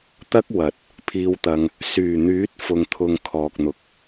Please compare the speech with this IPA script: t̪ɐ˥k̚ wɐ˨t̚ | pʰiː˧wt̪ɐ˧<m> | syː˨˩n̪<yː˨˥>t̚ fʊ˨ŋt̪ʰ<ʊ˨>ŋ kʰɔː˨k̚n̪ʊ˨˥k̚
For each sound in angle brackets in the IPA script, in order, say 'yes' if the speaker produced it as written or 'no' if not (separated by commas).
no, yes, yes